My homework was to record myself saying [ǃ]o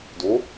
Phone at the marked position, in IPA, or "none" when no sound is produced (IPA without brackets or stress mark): d